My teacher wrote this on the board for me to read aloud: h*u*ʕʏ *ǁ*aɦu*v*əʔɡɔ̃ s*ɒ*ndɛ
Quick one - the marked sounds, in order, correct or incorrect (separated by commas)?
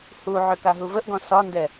correct, incorrect, correct, correct